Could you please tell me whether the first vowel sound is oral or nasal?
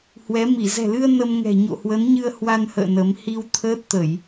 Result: oral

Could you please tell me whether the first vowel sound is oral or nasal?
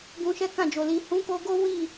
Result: nasal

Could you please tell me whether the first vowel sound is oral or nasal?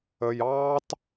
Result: oral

